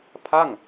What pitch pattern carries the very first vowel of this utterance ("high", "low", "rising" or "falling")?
falling